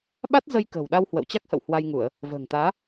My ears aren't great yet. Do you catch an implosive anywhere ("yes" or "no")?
yes